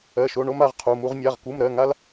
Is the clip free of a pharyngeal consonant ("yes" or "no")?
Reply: yes